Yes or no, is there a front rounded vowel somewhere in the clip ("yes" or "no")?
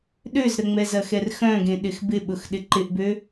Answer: yes